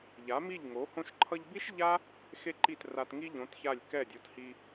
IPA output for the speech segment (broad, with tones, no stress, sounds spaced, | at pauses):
ʎ a˨˦ m i˦˨ ʎ ŋ o˨˦ h õ˧ ʃ ǃʰ ʌ˧ ʎ b i˦ ʃ ʎ a˦ | x e˦ ǃ i˦˨ t r a˧ t ŋ i˦ ʎ õ˨˦ t ç a˦˨ lʲ k ɛ˦˨ dʲ o˨˦ t h i˧